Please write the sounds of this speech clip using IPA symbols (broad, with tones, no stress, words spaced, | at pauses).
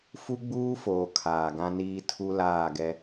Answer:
fu˦ɡ͡buː˦foː˨ kʰaː˨ɡã˦niː˦ tʰu˦laː˦˨ɡɛ˦